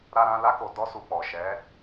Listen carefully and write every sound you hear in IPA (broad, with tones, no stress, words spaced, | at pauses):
ɾa˦ɾã˦ la˦ko˧ dɔ˦su˧k͡pɔ˨ ʃɛ˨˦